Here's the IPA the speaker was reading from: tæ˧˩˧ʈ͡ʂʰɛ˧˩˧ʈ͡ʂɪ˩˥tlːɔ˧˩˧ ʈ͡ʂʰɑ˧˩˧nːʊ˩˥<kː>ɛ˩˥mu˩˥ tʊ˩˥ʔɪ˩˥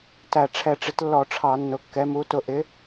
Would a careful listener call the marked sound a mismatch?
no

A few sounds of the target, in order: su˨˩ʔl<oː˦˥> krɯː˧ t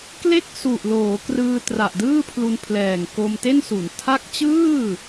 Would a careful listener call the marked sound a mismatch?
yes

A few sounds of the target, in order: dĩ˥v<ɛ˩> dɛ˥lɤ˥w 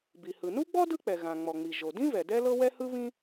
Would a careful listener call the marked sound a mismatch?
no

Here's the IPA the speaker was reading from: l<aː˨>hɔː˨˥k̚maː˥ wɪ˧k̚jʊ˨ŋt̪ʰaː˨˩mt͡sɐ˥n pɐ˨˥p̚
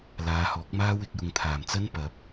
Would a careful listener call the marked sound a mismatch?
yes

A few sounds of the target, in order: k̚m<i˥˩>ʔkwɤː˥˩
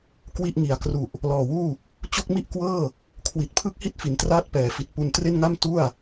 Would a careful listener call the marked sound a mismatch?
no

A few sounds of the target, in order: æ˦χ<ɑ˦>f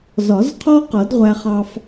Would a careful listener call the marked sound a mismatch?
no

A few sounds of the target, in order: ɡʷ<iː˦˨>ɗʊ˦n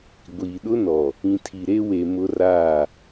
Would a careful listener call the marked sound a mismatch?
yes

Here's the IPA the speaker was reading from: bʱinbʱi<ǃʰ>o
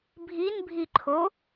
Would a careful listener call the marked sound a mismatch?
no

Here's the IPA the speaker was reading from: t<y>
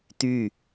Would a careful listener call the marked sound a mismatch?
no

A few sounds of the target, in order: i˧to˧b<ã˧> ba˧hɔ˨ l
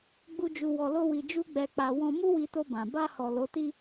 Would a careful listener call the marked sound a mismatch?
yes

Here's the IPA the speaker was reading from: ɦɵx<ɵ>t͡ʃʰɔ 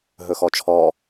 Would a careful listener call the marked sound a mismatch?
yes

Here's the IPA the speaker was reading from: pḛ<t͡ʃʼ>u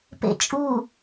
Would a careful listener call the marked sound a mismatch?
no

